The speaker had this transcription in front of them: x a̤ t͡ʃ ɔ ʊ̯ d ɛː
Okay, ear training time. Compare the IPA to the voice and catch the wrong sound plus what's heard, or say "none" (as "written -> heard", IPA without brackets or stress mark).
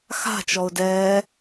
none